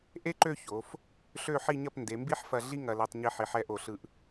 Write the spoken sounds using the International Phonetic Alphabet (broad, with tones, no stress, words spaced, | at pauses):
ʔe˥ǃø˥˧ ço˩˧f | ɬø˥˧ħi˥˧ɲɐ˥˧p nde˩˧mbi˥ħfɐ˧ ɮi˥ ŋɐ˧lɛ˧tˤ ɲi˧ħi˩˧ħɛ˧ʔo˧˩ ɬɯ˧ʔ